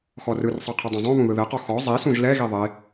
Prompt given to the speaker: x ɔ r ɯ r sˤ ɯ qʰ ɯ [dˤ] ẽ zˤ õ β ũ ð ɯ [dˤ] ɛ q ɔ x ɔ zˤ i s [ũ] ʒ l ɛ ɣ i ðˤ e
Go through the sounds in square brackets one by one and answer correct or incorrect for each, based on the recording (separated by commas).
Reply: correct, incorrect, correct